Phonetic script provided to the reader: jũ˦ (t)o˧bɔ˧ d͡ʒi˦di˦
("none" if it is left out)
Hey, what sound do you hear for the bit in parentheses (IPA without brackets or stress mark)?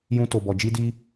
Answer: t